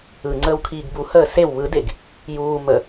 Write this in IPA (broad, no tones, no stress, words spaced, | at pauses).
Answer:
ɯ ŋ͡ǀəːwkʰiːɡbuhəː sew βɯdeɡ | juː mə